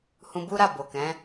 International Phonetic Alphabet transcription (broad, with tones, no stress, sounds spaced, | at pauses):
h ũ˧ b u˦ ɾ a˦˨ b o˨ k ɛ̃˨˦